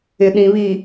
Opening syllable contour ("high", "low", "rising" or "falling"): low